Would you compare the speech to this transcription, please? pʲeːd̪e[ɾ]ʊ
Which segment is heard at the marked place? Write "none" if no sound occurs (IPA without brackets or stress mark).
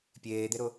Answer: ɾ